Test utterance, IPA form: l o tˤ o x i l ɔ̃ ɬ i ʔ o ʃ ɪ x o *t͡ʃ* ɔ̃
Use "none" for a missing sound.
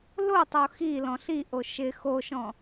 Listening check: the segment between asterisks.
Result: ʃ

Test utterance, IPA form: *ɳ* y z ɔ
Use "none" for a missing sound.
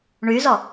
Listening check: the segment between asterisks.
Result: ɳ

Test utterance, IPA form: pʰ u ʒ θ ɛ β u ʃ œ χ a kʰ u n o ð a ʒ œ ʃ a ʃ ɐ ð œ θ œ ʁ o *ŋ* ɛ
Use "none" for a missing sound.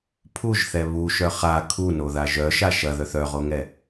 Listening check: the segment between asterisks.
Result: ŋ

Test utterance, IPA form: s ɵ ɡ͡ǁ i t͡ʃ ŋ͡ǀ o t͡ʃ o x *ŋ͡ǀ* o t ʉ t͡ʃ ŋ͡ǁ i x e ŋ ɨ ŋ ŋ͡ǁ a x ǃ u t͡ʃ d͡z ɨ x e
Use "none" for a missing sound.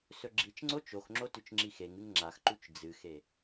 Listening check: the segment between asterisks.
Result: ŋ͡ǁ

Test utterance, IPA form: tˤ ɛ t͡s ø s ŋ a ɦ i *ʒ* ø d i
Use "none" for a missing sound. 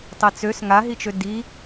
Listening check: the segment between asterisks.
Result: t͡ʃ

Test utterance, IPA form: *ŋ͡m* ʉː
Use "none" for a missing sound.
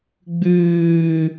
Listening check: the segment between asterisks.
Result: ɡ͡b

